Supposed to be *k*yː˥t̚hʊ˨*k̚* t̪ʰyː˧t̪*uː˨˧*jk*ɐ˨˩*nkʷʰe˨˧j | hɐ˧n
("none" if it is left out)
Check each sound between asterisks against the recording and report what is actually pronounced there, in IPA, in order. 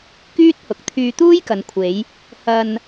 k, k̚, uː˥, ɐ˨

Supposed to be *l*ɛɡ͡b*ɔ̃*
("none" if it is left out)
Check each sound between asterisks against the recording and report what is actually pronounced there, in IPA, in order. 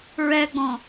ɹ, ɔ̃

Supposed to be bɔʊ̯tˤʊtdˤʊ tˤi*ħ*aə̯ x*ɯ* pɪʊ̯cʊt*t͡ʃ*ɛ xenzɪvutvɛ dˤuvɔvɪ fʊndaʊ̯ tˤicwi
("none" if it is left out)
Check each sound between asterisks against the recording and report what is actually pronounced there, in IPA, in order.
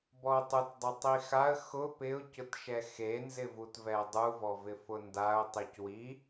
x, ʊ, ʃ

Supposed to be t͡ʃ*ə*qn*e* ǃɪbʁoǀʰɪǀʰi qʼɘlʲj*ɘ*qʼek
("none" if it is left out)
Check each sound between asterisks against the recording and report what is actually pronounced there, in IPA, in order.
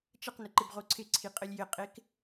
ə, ɘ, ɘ

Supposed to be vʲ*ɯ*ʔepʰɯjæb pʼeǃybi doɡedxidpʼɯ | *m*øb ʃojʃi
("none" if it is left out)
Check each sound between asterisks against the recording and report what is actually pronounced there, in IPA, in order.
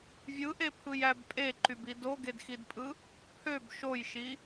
ɯ, pʰ

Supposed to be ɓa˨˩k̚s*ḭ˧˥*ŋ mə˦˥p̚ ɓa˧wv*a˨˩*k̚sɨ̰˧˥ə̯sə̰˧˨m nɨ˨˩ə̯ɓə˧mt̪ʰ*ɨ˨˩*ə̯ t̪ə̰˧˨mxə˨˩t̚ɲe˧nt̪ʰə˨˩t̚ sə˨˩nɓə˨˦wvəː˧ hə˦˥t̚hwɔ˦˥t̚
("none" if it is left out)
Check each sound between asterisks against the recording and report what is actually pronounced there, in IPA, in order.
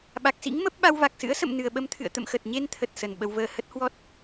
ḭ˧˥, a˨˩, ɨ̰˧˨

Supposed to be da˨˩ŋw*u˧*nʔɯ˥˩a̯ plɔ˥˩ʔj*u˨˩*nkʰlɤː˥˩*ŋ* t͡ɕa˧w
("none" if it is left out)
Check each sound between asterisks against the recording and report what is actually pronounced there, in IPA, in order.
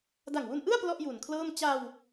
u˧, u˨˩, m

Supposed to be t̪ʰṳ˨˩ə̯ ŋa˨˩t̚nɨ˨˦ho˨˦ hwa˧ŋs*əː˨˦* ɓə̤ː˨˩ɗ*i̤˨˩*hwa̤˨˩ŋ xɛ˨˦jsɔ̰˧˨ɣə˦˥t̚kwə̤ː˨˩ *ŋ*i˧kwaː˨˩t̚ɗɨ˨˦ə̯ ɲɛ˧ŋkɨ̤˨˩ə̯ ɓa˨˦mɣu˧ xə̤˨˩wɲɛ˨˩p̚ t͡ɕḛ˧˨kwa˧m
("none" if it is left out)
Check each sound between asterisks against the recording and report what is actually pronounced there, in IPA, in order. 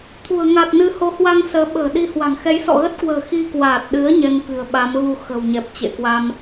əː˨˦, i˧, x

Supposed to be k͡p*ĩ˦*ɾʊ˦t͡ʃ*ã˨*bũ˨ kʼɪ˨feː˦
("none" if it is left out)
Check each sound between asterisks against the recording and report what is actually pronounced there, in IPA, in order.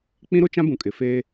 ĩ˦, ã˦

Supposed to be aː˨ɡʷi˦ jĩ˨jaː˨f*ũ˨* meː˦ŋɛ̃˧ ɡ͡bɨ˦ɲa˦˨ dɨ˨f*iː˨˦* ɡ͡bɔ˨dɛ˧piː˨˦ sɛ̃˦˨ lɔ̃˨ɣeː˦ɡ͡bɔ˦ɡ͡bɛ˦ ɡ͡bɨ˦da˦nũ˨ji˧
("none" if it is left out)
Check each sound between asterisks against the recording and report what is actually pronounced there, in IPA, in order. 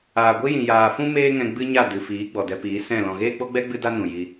ũ˦, iː˨˦

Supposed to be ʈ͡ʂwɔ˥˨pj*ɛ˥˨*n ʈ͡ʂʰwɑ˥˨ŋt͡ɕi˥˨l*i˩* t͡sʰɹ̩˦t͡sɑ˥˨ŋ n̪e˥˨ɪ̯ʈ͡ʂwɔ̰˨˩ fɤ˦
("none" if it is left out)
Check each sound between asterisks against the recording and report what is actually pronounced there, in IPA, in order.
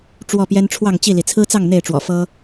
ɛ˦, i˩

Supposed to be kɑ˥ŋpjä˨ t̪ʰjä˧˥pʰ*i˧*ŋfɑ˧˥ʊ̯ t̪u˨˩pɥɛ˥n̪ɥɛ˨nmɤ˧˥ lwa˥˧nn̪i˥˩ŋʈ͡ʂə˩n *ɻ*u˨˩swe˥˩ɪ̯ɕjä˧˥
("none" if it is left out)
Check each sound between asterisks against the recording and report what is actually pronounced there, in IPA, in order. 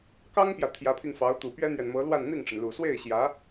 i˧, l

